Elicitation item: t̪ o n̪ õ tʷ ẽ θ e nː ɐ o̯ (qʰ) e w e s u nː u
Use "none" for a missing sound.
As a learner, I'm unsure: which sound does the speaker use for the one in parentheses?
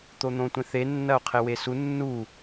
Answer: qʰ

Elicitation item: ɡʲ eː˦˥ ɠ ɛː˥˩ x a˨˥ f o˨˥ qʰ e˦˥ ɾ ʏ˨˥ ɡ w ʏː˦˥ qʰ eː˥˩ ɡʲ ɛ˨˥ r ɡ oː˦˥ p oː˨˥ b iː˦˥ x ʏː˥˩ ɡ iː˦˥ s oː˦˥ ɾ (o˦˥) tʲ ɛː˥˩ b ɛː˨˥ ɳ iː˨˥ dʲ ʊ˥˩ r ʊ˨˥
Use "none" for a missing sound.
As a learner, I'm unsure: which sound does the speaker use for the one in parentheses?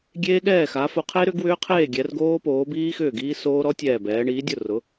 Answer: ɔ˦˥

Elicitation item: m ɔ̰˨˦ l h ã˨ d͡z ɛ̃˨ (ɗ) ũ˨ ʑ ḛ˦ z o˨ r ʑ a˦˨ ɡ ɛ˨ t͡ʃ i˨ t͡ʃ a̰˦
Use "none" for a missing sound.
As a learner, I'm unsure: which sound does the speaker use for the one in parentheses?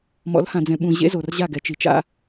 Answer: ɓ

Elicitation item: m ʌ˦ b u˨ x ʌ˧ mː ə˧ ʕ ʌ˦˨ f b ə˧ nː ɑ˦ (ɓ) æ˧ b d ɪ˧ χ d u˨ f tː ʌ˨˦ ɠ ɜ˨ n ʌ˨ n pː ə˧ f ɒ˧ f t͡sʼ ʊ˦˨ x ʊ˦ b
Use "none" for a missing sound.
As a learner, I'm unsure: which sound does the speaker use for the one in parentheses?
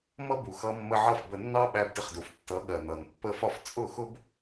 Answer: ɓ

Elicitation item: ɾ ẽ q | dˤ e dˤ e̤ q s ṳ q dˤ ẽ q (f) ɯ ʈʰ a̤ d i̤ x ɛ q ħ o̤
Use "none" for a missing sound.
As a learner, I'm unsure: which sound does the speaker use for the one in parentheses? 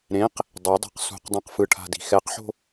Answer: f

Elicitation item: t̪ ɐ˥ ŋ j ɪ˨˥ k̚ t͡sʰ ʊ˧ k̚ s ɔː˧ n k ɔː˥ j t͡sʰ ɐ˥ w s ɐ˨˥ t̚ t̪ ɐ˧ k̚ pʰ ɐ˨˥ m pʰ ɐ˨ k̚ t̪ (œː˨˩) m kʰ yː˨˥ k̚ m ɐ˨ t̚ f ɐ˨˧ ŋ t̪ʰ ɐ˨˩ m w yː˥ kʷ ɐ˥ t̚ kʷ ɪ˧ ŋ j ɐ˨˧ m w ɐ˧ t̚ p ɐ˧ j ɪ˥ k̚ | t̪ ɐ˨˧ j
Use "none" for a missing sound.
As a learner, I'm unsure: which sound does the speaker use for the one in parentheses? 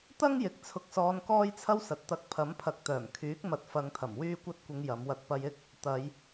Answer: œː˨˩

